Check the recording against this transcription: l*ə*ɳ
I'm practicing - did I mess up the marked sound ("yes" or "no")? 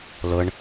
no